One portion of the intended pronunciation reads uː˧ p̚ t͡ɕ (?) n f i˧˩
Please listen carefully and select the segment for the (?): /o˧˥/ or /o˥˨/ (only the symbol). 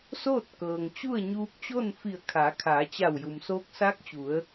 o˥˨